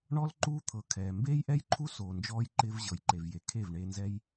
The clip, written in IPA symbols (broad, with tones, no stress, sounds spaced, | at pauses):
ɳ ɔ˦ l ǃ uː˦ t̪ʰ ɤ˨ kʰ ɛː˨ m b eː˦ j ʔ ɛ˦ j ǃʰ u˦ s oː˨ n d͡ʒ ɔː˧ j ǃ ɪː˧ v ʑ ɤ˨ j ǃ e˨ v j e˨ kʰ e˦˨ v ɳ eː˧ n z ɛ˦ j